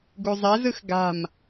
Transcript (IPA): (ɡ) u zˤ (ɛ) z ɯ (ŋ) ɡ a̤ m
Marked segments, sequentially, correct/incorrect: correct, correct, incorrect: x

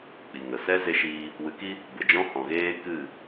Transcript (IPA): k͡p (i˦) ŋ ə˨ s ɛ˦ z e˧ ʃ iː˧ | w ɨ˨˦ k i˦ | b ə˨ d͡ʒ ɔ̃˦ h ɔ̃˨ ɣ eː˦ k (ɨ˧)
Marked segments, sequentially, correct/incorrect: incorrect: i˨, incorrect: ɨ˦˨

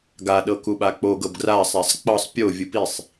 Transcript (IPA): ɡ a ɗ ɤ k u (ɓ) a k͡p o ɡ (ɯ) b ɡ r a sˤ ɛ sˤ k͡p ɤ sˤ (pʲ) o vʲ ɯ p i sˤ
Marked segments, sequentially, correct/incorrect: correct, incorrect: ɤ, correct

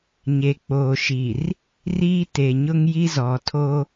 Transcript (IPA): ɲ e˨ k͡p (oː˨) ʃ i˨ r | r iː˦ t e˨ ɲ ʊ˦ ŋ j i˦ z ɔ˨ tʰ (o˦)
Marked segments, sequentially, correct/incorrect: correct, correct

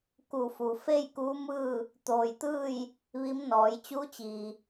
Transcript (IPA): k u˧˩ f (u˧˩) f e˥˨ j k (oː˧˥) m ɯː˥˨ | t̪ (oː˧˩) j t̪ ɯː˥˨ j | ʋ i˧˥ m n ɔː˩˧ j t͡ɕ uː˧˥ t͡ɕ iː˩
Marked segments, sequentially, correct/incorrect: incorrect: u˩, incorrect: uː˧˥, correct

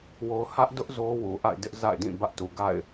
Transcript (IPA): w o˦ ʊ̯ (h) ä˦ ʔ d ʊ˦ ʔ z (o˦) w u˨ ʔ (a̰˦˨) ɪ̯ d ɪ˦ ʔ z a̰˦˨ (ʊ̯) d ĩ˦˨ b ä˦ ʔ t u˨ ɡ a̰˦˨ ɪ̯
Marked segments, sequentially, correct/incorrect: correct, correct, correct, incorrect: ɪ̯

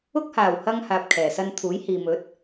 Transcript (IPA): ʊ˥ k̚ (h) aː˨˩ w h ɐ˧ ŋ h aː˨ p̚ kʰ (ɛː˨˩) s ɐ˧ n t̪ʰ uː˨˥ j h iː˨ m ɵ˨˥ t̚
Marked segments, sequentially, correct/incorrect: correct, correct

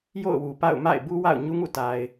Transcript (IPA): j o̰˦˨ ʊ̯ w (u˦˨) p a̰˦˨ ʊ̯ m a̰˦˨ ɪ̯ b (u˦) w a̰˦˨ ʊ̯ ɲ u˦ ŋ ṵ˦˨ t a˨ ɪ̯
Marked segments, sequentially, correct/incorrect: incorrect: u˨, correct

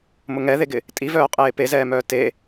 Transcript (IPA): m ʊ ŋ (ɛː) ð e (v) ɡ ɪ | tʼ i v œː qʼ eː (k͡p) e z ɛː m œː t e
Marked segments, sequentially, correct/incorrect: incorrect: ɛ, incorrect: none, incorrect: p

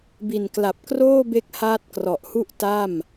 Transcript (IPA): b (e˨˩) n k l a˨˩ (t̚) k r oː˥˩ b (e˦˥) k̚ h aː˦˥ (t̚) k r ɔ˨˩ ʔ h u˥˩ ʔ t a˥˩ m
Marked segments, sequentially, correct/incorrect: incorrect: i˨˩, incorrect: p̚, correct, correct

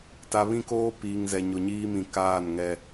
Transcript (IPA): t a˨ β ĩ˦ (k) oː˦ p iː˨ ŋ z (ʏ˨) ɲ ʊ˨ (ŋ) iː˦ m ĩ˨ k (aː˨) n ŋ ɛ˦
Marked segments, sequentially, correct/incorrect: correct, incorrect: ɛ˨, incorrect: ɲ, incorrect: aː˦˨

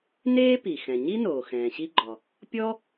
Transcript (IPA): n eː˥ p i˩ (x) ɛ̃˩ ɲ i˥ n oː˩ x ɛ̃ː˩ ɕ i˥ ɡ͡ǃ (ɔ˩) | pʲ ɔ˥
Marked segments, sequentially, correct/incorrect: correct, correct

